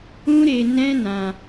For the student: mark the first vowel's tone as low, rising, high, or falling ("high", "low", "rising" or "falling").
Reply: high